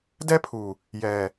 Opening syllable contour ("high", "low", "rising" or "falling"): high